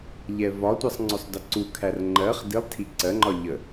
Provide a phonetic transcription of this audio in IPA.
ʎ ɛ v ɒ tʷ ʌ sˤ ŋ͡ǀ ʊ sˤ d ə ǀ u kʰ æ r ŋ͡ǃ ɜ χ d i lˠ tʰ i ǀ ɜ ŋ͡ǃ ɒ ʎ ə

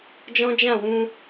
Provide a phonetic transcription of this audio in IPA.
d͡ʒ ɔ̃˦ d͡ʒ ã˦˨ w ũ˧

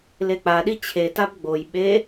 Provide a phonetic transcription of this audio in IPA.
l e k͡p a ɗ i t͡ɕʰ e t a b ɡ͡b o j ɓ e

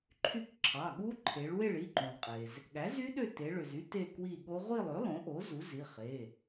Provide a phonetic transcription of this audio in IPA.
ǃʰ y˦˨ k ǁʰ ɑ˩˧˩ ɠ u˦˥ ǃʰ e˩˧ ɭ w e˦˨ ɭ i˩˧˩ ǃ ũ˩ lˠ qʼ e˩ z | ɠ æ˩˥ z y˦˥ ɗ ø˦˨ t e˩˧ ɭ ø˩ z y˦˥ t e˦˨ k w i˦˨ ɠ o˦˥ ʁʷ i˦˨ lˠ ø˩˥ lˠ õ˩˥ ʔ o˩˥ z u˩˥ z i˩˧˩ χ e˩˧˩

